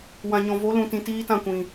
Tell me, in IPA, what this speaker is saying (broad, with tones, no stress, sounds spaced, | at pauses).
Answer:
w ã˨ ɲ ɔ̃˨ v o˨˦ l ũ˨ t ĩ˨ t iː˦ t ã˦˨ kʷ ĩ˨